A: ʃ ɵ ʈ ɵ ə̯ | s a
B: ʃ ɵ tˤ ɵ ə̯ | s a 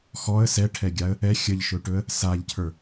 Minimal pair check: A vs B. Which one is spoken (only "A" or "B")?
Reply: A